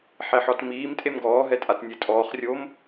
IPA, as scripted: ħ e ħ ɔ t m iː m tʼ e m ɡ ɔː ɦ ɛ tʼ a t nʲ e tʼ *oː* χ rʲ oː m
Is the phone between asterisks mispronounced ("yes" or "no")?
yes